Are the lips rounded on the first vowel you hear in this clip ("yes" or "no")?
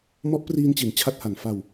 yes